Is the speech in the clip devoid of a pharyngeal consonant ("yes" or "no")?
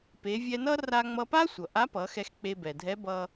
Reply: yes